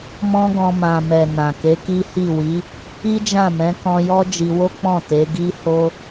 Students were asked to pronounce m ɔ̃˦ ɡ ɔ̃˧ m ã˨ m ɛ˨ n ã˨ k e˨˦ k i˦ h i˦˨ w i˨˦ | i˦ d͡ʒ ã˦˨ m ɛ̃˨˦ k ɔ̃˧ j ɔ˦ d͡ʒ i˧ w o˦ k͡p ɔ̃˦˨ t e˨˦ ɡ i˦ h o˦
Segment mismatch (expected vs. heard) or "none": none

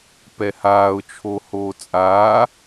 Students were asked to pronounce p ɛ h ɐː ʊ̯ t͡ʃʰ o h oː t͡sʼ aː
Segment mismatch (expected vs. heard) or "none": ɐː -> aː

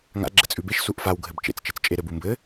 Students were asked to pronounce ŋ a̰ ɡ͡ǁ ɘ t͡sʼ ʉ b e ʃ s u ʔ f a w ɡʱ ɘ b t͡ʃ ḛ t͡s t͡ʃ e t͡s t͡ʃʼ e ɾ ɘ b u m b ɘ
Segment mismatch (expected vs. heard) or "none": none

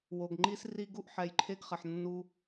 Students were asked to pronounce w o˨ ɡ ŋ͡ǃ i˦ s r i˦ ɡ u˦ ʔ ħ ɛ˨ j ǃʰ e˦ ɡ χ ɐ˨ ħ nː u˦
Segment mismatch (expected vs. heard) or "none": none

